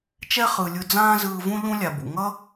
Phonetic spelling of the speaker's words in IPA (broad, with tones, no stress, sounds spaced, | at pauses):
t͡ʃ ɛ˦ χ ɯ˨ lʲ ɯ˧ d͡z ãː˦ z ɯː˧ v ũ˦ ʎ ũ˦ lʲ a˨ b ṵ˨ ŋ ʌ˦